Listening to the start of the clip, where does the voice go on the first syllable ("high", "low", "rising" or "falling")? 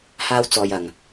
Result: high